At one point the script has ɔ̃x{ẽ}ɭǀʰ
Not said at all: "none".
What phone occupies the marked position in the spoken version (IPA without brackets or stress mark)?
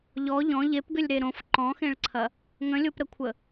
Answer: ẽ